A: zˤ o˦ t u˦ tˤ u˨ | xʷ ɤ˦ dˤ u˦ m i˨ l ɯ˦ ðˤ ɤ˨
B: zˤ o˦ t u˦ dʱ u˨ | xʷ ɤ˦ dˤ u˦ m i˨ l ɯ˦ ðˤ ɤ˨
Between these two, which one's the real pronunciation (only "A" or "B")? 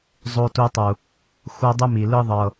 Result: A